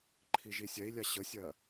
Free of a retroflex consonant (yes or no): yes